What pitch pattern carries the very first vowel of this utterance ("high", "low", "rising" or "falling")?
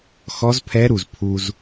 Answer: rising